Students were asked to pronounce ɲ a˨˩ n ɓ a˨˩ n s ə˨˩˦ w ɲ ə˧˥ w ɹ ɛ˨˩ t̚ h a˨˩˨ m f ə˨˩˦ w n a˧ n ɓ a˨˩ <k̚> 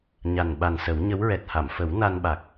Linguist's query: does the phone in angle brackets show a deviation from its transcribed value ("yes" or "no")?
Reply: no